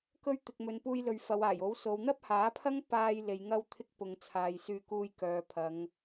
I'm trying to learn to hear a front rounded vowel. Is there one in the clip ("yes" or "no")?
yes